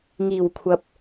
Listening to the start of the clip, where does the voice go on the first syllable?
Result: low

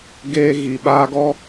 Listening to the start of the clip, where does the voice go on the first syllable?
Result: high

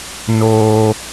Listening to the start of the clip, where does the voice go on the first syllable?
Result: high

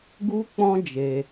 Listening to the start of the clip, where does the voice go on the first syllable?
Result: high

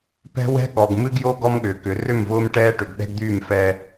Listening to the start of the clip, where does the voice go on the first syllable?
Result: high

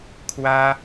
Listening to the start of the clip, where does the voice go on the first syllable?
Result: high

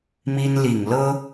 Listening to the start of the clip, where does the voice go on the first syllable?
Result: high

